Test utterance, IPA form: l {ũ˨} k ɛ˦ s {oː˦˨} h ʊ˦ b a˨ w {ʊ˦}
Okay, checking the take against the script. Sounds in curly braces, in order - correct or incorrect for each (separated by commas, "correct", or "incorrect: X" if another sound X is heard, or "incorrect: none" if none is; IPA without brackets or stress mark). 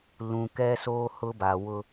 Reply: correct, incorrect: oː˦, correct